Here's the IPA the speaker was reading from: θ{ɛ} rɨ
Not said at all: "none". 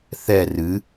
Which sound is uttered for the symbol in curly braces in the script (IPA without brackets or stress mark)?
ɛ